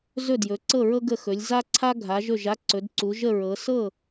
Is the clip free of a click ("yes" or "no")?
no